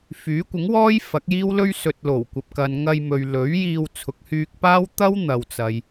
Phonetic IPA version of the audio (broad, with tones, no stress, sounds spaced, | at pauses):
f yː˨˥ kʷ ɪ˨˥ ŋ w ɔː˥ j f ɐ˨˥ k̚ j iː˥ w l ɵ˥ ɥ s ɵ˨ t̚ l o˨˩ w kʷ ɐ˨ p̚ k ɐ˨ n ŋ ɐ˧ j m ɵ˨ ɥ l ɵ˨˥ ɥ j iː˧ w t͡sʰ ʊ˨ k̚ h yː˧ k̚ p aː˥ w t̪ ɐ˥ w n̪ ɐ˨ w t͡s ɐ˨ j